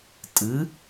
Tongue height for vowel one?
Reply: high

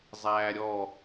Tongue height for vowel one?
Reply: low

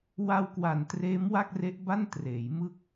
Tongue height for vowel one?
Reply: low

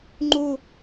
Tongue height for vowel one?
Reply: high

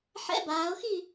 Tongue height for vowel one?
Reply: mid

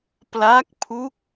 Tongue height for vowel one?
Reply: low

